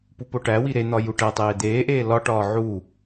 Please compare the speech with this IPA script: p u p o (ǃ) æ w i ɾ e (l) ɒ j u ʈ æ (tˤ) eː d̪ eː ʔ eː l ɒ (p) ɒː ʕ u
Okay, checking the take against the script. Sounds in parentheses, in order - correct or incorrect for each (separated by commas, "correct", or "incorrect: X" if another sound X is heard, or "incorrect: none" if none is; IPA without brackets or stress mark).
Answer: incorrect: ʈ, incorrect: n̪, correct, incorrect: ʈ